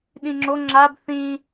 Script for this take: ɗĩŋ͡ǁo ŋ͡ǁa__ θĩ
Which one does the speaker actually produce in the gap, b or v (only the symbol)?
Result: b